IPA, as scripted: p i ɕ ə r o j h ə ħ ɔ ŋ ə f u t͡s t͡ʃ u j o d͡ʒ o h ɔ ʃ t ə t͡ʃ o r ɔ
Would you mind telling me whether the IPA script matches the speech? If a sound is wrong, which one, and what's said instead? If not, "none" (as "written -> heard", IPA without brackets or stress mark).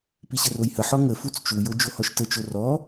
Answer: none